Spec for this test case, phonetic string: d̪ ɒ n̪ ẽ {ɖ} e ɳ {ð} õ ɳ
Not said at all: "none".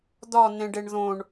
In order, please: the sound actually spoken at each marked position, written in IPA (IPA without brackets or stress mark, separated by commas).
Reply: ɖ, ð